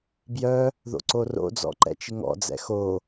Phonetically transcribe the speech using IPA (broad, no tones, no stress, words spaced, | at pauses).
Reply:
bjœ | ðo̰ǀoro̰d͡zɔ̰ ǃɛ̰t͡ʃɪŋɔ̰d͡zɛ̰ xo